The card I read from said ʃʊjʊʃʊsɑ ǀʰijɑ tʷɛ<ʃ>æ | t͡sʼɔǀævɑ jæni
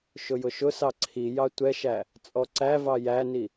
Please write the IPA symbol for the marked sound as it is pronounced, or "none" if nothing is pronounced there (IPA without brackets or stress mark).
ʃ